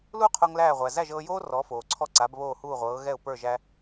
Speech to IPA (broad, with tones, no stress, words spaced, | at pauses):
luː˥qʰo˧ŋ læː˥˩ʁʷæ˩ zæ˥˩ʒɤː˧joː˥ rɔ˩˥ foː˩ǀʰɔ˥˩ǀa˩˥b βoː˥˩huː˥˩ʁʷɤː˩˥ ɣɛ˥˩ʊ̯pə˞˥˩ʒæ˧